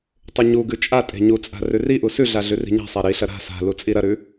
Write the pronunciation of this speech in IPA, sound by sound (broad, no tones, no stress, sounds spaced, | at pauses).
tˤ ʉ ɲ u ɡ ʉ t͡ʃʼ a tʼ e̤ ɲ u t͡sʼ a̤ r ʉ r i ʔ u s ʉ ɮ a ɮ ʉ r i̤ ɲ a̤ sˤ a ɾ i ɬ ɐ ɾ a̤ s a̤ l u t͡sʼ i ɾ ɐ ɾ ʉ